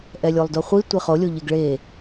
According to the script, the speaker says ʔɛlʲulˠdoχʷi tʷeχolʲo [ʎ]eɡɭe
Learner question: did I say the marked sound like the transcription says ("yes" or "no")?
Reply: yes